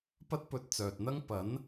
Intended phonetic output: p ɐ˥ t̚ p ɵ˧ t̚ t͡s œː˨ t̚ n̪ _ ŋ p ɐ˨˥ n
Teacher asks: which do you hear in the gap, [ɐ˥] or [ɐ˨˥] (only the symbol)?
ɐ˥